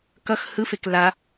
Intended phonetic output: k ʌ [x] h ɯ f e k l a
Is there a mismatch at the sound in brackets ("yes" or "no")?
no